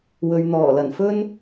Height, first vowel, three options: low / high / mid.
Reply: mid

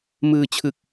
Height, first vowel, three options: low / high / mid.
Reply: high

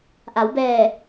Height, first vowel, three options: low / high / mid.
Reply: low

